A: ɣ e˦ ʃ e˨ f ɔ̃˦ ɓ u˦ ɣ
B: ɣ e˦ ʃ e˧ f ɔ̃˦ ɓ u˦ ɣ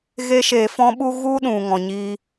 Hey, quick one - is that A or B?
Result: B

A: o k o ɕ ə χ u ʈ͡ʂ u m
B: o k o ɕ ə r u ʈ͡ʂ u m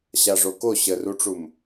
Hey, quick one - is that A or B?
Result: B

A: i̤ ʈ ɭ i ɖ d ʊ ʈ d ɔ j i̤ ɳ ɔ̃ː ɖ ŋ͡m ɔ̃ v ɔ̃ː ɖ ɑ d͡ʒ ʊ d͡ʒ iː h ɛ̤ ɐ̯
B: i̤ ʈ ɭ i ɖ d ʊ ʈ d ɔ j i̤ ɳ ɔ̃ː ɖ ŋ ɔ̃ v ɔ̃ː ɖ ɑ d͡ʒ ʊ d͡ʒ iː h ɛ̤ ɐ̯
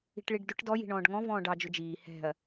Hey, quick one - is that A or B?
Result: B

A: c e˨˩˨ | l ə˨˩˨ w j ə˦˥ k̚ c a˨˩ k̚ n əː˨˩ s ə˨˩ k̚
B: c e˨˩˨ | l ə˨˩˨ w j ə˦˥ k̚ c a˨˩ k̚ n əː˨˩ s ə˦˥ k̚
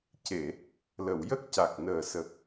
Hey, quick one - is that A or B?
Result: A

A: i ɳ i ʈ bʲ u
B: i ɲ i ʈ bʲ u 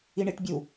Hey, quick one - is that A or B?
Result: A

